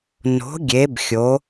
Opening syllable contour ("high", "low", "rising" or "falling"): rising